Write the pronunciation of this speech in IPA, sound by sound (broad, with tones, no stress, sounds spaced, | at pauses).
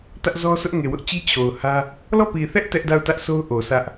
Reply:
t ä˦ ʔ z ɔ˦ sʰ ʊ˦ ʔ ŋ e˨ w ʊ˦ ʔ t͡ɕ i˦ t͡ɕʰ o˨ ʊ̯ h ä˦ | l ɔ˦˨ p i˨ θ ɛ˦ ʔ t ɛ˦ ʔ d a˦˨ ʊ̯ t ä˦ ʔ s o˦ ʊ̯ ʔ o˨ s ä˦ ʔ